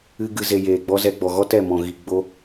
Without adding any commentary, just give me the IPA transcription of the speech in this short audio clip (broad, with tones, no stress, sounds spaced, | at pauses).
ɨ˧ ɡ ɨ˨ z e˨ j eː˨ ɡ͡b ɔ˧ z ɛ˧ ɡ͡b ɔ˨ ɣ ɔ˦ t ɛ˦˨ m ɔ̃˨ ɣ i˨ ɡ͡b o˧